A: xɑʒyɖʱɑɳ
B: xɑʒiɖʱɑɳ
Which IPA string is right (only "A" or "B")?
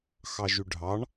A